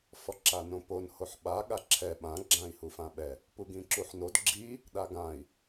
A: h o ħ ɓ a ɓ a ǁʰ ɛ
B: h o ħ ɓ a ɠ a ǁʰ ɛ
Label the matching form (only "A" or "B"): B